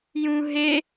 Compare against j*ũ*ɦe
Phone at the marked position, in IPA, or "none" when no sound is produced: ũ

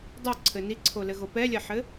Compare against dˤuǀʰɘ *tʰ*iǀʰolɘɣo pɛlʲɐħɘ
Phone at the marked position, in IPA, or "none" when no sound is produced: n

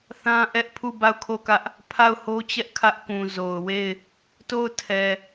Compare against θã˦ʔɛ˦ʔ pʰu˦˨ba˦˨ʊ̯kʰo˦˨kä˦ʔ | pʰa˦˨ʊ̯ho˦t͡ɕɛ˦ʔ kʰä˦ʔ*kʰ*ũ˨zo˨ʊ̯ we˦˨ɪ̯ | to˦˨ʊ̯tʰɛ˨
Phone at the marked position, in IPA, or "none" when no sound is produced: k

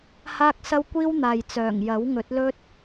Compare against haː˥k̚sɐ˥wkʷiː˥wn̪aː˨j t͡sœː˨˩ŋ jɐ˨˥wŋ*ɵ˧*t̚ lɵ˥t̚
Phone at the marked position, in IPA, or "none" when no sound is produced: ɵ˨˥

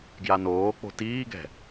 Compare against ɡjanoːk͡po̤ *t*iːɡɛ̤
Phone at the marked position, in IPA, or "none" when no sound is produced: t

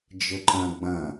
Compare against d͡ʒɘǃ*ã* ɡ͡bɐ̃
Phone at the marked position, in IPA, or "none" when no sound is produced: ɐ̃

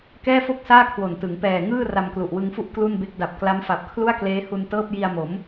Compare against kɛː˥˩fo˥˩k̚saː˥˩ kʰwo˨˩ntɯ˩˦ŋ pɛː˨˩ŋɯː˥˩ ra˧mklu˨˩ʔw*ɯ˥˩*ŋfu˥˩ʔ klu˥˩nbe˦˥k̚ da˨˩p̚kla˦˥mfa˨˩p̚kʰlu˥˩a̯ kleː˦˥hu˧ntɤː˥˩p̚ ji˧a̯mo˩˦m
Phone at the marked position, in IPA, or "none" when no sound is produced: ɯ˧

